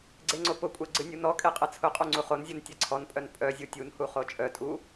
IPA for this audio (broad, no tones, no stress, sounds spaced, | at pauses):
ɡ͡ǀ e ŋ͡ǀ o p ʊ kʷʼ ɛ ɡ͡ǀ ɨ nʲ u n ɔ kʼ e qʼ ɛ t͡sʰ ʊ qʼ u ŋ͡ǀ u χ o n zʲ u n tʲ ɛ ǀʰ ɔ n pʼ œ n pʼ œ zʲ u tʲ u n h u χ o t͡ʃʼ œ tʼ u